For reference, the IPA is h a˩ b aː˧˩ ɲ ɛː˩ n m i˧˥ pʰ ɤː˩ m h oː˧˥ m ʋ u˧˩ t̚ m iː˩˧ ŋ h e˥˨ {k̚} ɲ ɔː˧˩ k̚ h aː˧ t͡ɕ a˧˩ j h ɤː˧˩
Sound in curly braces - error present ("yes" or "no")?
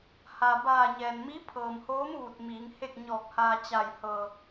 no